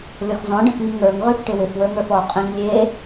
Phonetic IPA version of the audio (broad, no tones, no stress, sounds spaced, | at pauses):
lʲ ɔ x z ɔ̃ ɖ ə̃ x ŋ i ŋ ə˞ ŋ ʁ ʉ f ʈ ɪ w ɪ f w ə˞ ŋ ə˞ f ɔ qʼ ĩ ŋ lʲ e